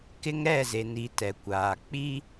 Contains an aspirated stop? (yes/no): no